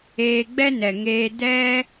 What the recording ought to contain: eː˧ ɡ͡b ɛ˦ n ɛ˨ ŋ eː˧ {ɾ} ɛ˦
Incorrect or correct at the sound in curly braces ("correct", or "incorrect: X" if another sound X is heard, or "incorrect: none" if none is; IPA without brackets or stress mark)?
incorrect: d